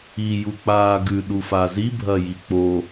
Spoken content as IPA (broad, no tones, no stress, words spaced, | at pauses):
i juk͡paːɡʉ ɗufazi bʱɐjik͡po